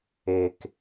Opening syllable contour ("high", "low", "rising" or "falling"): low